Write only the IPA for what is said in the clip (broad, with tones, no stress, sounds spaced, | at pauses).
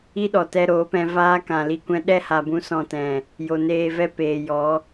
i˦ ɗ ɔ˨ t ɛ˧ ɾ oː˨˦ p ɛ̃˧ v aː˦ k ã˨ l i˧ kʷ ɛ̃˦ ɗ ɛ˦˨ h a˨ b ũ˧ s ɔ̃˧ t ɛ̃˨ | j o˨ n eː˧ v ɛ˦ p eː˨ j ɔ˨˦